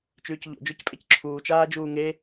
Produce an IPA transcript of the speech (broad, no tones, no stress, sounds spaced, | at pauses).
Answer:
t͡ʃ ʉː c ʎ o̰ d͡ʒ ø c pʼ e c ǁʰ uː t͡ʃ aː d͡ʒ uː ŋ e